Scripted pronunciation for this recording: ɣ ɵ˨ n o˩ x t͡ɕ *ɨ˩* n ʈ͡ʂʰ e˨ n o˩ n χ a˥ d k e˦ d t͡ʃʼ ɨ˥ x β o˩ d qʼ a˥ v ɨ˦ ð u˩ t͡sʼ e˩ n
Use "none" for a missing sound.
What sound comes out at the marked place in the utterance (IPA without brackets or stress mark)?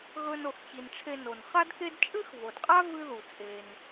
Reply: i˩